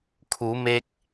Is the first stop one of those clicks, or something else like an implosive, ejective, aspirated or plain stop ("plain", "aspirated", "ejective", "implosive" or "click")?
aspirated